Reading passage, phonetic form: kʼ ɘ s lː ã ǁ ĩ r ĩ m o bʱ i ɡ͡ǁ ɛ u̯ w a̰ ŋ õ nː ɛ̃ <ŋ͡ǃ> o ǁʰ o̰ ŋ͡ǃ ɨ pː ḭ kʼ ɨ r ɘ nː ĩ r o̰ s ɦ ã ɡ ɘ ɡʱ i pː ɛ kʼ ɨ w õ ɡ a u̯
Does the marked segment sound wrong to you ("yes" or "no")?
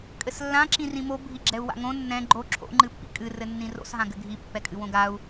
yes